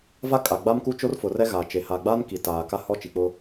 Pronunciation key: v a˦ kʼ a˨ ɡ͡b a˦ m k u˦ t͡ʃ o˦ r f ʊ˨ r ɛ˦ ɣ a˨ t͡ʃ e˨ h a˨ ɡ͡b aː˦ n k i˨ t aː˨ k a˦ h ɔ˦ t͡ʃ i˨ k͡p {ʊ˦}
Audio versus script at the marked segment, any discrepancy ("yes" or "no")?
no